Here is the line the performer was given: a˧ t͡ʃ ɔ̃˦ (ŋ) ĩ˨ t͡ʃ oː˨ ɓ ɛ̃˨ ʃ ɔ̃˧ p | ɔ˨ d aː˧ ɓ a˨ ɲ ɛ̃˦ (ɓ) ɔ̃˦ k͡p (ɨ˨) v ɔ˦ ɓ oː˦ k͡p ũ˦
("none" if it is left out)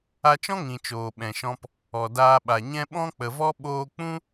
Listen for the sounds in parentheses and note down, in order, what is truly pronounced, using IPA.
ŋ, ɓ, ə˨

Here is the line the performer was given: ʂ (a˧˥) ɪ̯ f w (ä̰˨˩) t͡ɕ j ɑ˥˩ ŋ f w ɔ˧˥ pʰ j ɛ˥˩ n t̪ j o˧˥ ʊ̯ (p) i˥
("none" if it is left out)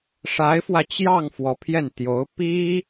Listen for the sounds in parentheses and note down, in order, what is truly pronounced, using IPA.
a˧˥, ä˧, p

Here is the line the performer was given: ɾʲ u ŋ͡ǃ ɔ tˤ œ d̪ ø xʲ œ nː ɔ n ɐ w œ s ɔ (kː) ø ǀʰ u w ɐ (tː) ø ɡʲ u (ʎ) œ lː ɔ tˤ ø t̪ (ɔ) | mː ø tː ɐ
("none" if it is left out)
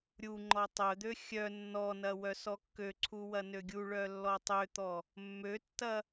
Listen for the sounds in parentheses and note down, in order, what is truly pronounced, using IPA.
kː, n, ɭ, ɔ

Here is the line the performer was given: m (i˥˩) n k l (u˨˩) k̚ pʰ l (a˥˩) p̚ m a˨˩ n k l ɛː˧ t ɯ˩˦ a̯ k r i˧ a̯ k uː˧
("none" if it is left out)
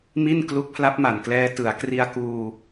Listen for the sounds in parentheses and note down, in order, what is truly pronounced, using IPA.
i˥˩, u˦˥, a˦˥

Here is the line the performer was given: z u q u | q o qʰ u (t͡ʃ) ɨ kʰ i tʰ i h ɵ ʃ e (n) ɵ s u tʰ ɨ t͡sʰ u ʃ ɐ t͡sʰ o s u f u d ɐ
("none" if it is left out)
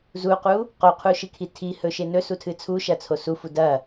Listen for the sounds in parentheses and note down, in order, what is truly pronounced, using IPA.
ʃ, n

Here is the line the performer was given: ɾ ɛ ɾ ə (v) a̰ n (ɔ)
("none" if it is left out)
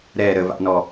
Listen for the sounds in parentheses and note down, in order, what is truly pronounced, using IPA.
v, ɔ

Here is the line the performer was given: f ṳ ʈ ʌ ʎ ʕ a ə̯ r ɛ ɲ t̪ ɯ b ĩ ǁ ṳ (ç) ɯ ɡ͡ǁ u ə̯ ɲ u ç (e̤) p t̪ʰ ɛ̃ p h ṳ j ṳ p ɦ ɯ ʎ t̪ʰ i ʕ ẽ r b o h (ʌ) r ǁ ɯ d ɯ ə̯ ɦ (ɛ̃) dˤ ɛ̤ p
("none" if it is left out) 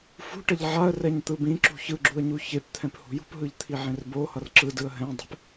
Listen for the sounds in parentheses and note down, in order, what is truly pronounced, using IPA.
ç, e, ʌ, ɛ̃

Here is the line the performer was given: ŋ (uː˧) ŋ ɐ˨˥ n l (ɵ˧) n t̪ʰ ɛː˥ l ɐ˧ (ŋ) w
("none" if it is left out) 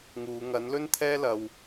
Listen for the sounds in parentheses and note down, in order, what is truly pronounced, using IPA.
uː˨˧, ɵ˥, none

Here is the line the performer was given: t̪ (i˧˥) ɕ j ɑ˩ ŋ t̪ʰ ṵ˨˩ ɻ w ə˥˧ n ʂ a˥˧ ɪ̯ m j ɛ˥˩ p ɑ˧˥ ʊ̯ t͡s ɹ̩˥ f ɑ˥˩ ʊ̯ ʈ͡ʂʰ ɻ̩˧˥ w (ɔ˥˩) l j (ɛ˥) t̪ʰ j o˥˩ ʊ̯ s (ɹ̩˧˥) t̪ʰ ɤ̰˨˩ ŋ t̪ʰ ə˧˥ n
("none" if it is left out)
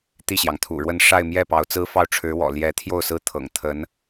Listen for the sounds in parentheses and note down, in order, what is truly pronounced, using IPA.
i˥˩, ɔ̰˨˩, ɛ˧˥, ɹ̩˥

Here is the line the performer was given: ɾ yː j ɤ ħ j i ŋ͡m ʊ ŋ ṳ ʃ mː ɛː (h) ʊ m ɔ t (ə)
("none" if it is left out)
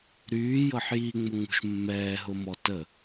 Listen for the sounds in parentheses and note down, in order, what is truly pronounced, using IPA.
ɦ, ə

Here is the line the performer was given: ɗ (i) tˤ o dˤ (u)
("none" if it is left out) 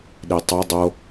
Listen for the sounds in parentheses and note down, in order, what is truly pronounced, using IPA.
i, o

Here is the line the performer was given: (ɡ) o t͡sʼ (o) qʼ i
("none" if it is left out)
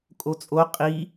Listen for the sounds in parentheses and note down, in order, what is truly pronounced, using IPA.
kʼ, o

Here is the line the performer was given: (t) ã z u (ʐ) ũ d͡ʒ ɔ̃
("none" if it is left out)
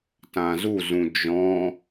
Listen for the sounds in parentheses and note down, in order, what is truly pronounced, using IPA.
t, z

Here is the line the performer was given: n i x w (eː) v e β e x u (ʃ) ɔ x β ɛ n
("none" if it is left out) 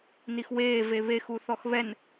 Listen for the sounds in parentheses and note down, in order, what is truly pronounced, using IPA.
eː, θ

